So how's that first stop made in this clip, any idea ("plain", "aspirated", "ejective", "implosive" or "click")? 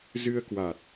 plain